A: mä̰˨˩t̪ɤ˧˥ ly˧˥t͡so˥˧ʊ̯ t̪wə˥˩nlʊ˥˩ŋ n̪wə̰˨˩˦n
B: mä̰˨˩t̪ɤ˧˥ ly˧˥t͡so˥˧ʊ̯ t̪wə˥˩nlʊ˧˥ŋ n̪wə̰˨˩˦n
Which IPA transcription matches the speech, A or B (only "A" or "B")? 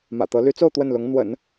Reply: B